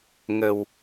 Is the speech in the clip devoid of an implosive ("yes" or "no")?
yes